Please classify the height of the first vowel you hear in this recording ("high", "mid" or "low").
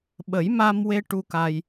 mid